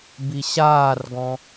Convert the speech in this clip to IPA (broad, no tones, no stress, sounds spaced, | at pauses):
b i ɕ aː r ɡ ɔ̃